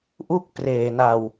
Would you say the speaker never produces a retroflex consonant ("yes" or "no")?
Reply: yes